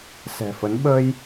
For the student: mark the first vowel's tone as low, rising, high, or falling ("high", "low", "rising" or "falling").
low